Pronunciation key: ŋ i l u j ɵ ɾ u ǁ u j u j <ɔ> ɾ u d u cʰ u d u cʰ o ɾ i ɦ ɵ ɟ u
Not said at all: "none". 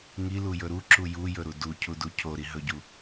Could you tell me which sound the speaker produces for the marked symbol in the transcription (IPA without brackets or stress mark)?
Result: ɵ